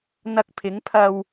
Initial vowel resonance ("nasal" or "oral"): oral